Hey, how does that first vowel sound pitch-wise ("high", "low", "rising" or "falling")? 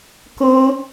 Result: high